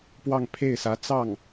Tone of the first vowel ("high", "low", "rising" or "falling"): falling